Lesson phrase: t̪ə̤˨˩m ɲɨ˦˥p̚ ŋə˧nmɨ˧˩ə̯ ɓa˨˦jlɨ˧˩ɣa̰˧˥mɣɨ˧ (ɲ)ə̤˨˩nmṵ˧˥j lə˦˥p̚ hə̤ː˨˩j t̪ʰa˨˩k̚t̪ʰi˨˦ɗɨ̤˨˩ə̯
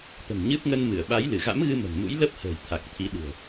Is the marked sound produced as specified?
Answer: no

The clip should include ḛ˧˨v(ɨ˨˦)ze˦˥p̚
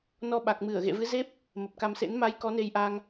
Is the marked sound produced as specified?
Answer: yes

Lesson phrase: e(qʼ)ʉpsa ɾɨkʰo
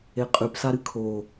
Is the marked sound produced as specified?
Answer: yes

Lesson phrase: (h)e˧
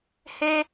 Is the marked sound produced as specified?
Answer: yes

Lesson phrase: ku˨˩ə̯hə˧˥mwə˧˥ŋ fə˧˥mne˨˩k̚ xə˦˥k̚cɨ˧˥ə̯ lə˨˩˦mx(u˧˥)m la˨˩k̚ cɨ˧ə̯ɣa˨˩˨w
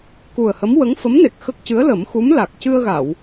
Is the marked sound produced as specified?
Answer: yes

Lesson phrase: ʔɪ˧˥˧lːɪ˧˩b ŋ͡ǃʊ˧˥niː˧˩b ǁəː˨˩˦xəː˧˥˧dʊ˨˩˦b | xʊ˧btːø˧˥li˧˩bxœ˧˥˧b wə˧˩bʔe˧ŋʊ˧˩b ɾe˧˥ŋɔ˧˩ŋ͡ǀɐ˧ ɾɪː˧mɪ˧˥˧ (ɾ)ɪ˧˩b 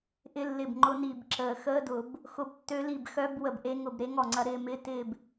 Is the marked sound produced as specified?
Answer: no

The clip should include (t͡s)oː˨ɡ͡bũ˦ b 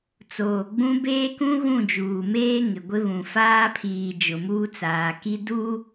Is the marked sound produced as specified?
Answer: yes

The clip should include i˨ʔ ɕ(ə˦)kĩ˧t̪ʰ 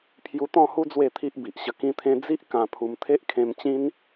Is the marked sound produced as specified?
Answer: no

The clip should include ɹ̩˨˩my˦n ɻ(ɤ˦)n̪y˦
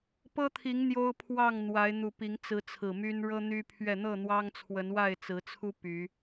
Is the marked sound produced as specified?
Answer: yes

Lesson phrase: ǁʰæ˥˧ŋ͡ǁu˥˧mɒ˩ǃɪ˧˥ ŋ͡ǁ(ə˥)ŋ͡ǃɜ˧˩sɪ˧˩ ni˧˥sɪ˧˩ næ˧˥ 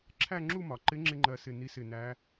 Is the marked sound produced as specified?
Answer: no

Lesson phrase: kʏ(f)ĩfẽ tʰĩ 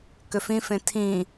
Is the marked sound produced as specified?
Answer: yes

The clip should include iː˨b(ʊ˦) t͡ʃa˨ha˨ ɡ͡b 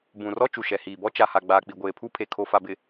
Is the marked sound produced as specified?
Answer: no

